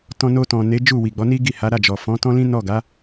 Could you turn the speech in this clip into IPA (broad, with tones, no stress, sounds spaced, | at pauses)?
t ɔ̃˧ n o˧ t ɔ̃˨ n e˨˦ d͡ʒ u˦˨ w i˨ ɡ͡b ɔ˨˦ n i˦ ɡ i˦˨ h a˨˦ ɾ a˦˨ d͡ʒ ɔ˨ f ɔ̃˨˦ t ɔ̃˦ l ĩ˦ n ɔ˦˨ ɡ a˨˦